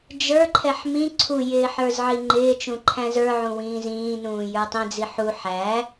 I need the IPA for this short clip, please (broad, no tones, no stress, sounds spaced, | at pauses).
d͡ʒ ə˞ ǃʰ ɛ ħ m ĩ ǀʰ u j ɪː ħ ə˞ z ʕ i ŋ͡ǃ ɪː t͡ʃ ũ ǃʰ æ̃ z ə˞ ʕ ũ w ĩː z ĩː n ũː j ə˞ tˤ ĩ d͡z i ħ u ħ æ